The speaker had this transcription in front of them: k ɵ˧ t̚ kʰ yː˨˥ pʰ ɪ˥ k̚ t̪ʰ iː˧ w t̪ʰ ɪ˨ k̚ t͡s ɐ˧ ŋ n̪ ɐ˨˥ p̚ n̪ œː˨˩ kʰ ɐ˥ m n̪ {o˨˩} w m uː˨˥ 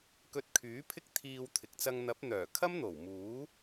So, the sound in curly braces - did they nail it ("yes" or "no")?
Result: yes